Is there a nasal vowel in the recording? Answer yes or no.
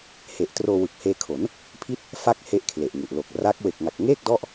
no